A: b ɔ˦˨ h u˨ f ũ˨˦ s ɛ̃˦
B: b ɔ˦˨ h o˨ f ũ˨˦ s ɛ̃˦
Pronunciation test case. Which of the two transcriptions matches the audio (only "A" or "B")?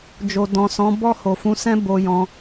B